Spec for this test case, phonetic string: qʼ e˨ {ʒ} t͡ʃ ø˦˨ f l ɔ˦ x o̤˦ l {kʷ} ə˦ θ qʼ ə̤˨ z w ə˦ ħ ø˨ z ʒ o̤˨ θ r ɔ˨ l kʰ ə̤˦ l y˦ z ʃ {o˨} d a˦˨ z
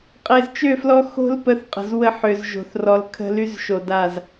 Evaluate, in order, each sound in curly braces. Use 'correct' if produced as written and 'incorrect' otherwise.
incorrect: z, incorrect: p, correct

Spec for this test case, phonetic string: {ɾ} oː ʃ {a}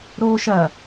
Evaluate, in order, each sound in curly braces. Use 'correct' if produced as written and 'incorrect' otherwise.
correct, incorrect: ɐ

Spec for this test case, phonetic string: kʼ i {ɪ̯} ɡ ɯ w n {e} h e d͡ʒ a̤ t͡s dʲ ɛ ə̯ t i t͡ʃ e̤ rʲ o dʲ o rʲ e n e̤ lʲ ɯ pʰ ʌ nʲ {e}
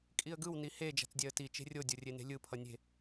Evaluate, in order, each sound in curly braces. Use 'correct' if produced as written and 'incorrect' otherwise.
incorrect: ə̯, incorrect: i, incorrect: e̤

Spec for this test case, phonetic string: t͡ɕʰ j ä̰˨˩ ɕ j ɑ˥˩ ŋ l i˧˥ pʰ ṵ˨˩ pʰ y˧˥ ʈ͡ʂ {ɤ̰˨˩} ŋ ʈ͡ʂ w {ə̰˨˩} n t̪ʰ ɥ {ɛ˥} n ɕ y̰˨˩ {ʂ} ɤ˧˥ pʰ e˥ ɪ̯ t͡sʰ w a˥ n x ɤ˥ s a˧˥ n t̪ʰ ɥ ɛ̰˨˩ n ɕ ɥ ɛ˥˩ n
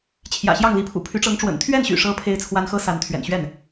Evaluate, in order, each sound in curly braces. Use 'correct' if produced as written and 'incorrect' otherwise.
incorrect: ɤ˧˥, correct, incorrect: ɛ˥˩, correct

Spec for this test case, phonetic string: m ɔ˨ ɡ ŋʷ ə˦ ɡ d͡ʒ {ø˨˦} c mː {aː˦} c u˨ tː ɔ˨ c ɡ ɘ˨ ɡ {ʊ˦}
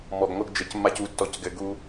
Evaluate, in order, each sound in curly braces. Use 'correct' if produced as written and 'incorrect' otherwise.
incorrect: ɘ˨˦, incorrect: a˦, incorrect: u˦

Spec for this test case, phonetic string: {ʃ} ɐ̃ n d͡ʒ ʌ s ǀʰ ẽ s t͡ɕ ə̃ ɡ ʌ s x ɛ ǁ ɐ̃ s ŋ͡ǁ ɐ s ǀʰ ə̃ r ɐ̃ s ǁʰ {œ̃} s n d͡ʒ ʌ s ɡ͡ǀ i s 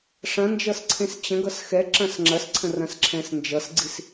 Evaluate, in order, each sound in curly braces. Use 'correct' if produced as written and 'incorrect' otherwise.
incorrect: ʂ, incorrect: ɛ̃

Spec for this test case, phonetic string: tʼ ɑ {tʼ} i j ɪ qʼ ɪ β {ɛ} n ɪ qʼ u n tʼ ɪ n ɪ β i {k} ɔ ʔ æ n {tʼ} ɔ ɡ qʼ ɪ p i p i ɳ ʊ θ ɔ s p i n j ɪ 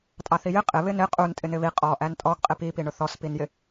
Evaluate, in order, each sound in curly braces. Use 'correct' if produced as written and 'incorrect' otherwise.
incorrect: θ, incorrect: ɪ, incorrect: qʼ, correct

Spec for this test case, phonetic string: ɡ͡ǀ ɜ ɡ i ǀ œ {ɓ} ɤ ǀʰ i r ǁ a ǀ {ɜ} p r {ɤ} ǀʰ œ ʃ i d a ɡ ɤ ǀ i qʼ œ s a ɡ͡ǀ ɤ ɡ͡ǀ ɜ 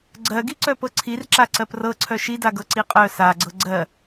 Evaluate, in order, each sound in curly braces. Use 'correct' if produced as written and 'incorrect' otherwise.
incorrect: p, correct, correct

